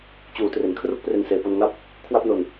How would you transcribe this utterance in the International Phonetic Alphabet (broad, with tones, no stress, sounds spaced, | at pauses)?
t͡ɕ uː˩˦ t r e˨˩ n kʰ r u˥˩ k̚ p r e˧ n s eː˩˦ p o˧ n ŋ a˥˩ p̚ | kʰ w a˥˩ p̚ n o˧ n